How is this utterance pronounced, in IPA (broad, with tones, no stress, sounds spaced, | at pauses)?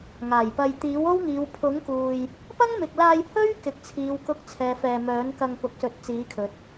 ŋ aː˨˩ j p ɐ˧ j t̪ iː˨˥ w o˥ w ŋ iː˨˧ w pʰ ʊ˨˥ ŋ k uː˨ j | p ɐ˥ ŋ m ɪ˨ k̚ l aː˧ j h ɵ˥ ɥ k ɪ˨ k̚ t͡sʰ iː˨˧ w k ʊ˧ k̚ t͡sʰ ɛː˨ f ɛː˧ m œː˨˥ n k ɐ˧ ŋ p ʊ˨˥ k̚ s ɵ˨˥ t̚ t͡s iː˨˥ kʰ ɵ˨ t̚